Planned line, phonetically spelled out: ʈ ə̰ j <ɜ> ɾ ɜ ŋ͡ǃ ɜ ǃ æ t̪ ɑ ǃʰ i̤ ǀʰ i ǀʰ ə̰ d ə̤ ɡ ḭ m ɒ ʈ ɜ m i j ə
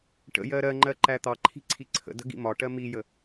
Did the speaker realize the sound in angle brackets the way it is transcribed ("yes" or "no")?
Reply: yes